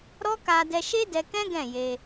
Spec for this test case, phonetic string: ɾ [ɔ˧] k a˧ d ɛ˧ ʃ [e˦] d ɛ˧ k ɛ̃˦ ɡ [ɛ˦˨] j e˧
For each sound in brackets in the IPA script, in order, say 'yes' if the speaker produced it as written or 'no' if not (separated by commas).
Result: no, yes, no